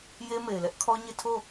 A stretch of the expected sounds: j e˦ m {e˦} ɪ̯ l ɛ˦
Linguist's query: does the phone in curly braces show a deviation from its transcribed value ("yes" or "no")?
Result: yes